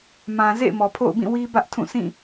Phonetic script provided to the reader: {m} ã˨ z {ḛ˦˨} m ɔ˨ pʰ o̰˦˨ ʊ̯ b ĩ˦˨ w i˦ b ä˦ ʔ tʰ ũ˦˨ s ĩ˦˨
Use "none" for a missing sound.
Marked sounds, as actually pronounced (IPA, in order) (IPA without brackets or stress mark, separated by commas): m, ḛ˦˨